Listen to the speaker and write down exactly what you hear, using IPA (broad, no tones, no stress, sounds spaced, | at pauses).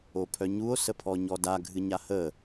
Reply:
o pʰ œ ɲ u o̯ s ə pʰ ɔ ɲ ɔ d a ɡʱ ɨ ɲ a h ə